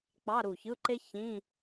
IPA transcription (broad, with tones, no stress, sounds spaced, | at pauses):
k͡p ɑ˧˥˧ ɾ u˧˩ ç ɯ˧˥˧ ǃ e˥ ç ĩ˧˥˧